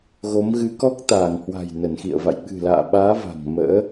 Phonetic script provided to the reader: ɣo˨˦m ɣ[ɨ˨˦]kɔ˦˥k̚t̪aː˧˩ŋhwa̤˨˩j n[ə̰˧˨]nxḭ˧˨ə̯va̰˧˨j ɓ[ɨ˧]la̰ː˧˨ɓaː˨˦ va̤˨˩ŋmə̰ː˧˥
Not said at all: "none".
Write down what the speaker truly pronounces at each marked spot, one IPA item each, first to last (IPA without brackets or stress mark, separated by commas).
ɨ˨˦, ə˧˩, ɨ̤˨˩